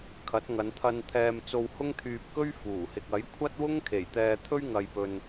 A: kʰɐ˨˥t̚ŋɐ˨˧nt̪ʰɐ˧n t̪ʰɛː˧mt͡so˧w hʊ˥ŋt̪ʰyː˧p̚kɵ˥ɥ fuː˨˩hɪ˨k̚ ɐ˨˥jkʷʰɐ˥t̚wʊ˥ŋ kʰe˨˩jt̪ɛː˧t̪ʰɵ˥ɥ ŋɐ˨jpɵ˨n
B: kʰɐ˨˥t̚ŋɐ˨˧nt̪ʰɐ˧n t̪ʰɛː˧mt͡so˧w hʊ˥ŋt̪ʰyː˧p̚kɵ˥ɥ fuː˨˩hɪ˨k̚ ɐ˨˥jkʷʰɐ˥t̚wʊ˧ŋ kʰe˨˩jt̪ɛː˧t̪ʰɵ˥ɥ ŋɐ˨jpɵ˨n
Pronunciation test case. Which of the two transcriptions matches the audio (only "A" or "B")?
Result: A